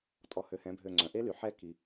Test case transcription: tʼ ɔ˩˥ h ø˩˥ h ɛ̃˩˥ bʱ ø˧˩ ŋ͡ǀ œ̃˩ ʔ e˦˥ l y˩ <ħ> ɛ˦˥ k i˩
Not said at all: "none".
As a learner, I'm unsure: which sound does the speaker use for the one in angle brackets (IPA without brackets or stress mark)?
ħ